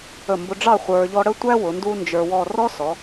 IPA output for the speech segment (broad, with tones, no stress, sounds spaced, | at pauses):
ə˧˩ m b ʊ˧ ɖ͡ʐ ɑ˥˧ χʷ ə˞˧ ʎ ɔ˥ ɽ ə˥ tʷ æ˥ w ʊ˩˧ n d u˥ n d͡ʒ ə˞˧ w ɔ˥˧ r ɔ˥ s ɔ˩˧